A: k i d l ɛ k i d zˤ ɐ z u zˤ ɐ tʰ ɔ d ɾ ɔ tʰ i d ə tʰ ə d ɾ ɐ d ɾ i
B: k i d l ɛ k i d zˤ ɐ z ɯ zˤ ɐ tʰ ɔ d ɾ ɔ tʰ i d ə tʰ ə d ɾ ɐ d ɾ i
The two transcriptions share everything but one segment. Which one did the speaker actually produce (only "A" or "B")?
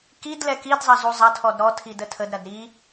A